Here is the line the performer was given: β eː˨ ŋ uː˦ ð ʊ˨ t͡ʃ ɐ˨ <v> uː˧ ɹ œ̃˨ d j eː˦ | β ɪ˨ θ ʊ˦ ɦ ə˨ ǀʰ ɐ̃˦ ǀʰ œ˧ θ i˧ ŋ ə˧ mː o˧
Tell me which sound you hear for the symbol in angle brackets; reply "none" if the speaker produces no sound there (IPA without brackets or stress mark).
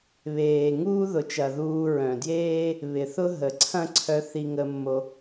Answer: ð